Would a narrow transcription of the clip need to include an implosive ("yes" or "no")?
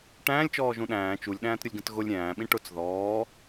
yes